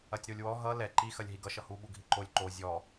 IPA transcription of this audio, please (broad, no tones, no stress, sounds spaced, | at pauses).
ɐ tʲ ɾ o lʲ w ɔ ɦ ʌ l ɛ ǃ i x ɐ lʲ ɦ i ɡ ʌ ʃ ʌ h u ɓ u ɡʱ i ǃ o lʲ ǃ o zʲ ɔ